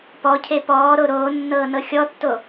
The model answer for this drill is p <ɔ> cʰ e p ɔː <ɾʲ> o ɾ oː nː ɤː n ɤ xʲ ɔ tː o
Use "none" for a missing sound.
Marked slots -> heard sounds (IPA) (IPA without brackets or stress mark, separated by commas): ɔ, ɾ